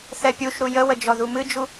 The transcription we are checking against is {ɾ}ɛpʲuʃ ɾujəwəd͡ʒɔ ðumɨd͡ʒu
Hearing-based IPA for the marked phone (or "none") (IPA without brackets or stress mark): θ